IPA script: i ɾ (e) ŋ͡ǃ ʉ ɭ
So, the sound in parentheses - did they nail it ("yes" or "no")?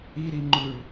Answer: no